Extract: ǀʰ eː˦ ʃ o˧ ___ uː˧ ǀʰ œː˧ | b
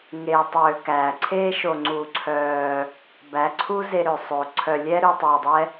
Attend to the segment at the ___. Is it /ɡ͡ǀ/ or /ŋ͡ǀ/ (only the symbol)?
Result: ŋ͡ǀ